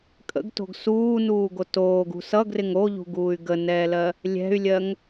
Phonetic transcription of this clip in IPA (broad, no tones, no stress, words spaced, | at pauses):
kʼə̰ɡto̤ɡ suːnuːɡo toːɡṳ sʌɡrɪŋ oʎṳɡuːy̯ ɡənɛːlɜ | lʲɛ̤y̯lʲɜŋ